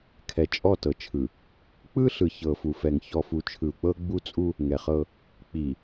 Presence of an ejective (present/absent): present